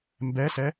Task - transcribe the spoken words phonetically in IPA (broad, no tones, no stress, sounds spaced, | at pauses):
m b ɛ s ɛ